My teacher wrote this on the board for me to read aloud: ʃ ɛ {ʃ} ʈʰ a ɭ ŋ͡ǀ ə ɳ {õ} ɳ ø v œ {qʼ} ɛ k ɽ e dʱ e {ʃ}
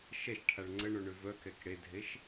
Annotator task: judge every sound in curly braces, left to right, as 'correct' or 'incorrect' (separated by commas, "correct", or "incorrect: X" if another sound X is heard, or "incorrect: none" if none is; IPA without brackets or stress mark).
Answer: correct, incorrect: o, incorrect: k, correct